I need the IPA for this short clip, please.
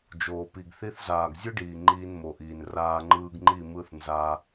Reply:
d͡ʒ oː˨ p i˨ ɡ θ i˧ θ z aː˨ ɡ zʲ ɯ˦ ɖ iː˨ ŋ͡ǃ iː˧ n m o˨ ʔ iː˨ n r aː˧ ŋ͡ǃ ɯː˧ ɡ ŋ͡ǃ i˦˨ m ɯ˦˨ θ n z a˧

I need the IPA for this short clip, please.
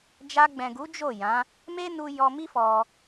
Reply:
d͡ʒ a˧ ɡ͡b ɛ̃˨ ɡ u˨˦ d͡ʒ o˦˨ j ã˨˦ | m e˦ n u˧ j ɔ˧ m i˦ f ɔ˧

